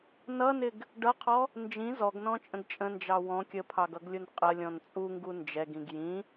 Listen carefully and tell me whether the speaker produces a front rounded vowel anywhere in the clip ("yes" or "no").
no